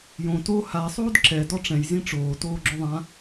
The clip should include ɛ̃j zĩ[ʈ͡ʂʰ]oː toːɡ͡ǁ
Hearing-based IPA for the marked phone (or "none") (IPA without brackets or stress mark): ʈ͡ʂ